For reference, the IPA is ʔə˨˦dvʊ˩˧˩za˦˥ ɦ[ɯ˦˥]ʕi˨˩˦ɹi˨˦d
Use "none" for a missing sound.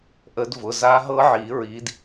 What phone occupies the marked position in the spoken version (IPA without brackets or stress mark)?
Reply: ɤ˦˥